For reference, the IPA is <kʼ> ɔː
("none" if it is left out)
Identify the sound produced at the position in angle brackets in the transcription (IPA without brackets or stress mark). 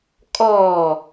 kʼ